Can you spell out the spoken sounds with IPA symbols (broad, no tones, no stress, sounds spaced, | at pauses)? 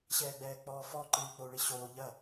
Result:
ɕ ɛː ɡ͡b ɛː k͡p ɔː f ɔ ǃ ɨː i̯ k͡p o u̯ ɭ i ɕ oː ʎ ɐ